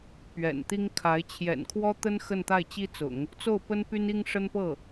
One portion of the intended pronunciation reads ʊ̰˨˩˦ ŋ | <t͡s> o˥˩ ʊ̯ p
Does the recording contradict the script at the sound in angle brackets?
no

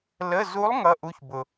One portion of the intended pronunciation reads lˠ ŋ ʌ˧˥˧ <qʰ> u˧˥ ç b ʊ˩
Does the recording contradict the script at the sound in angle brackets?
yes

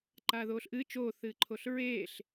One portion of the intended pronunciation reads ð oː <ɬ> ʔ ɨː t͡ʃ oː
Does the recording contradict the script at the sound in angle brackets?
no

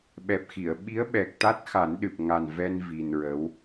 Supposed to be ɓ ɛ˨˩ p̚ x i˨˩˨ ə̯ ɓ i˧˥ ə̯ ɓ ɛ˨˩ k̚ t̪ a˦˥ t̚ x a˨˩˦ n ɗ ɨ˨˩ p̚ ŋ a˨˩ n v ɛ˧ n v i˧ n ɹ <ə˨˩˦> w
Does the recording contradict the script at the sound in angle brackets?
yes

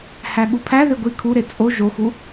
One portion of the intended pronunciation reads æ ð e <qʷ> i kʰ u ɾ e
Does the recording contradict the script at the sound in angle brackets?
yes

